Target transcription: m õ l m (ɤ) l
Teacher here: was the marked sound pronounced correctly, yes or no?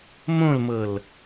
yes